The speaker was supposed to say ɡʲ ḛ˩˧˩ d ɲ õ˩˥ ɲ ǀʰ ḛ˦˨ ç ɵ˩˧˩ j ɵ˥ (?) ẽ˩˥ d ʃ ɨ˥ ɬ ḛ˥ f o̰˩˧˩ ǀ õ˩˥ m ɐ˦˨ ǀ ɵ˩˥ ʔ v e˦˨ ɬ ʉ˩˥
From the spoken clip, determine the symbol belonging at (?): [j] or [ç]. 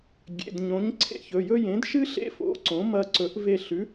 j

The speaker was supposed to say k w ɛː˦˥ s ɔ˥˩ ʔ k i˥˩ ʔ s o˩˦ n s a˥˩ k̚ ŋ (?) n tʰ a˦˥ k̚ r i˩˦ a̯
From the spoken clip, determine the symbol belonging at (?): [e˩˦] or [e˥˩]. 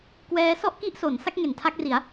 e˩˦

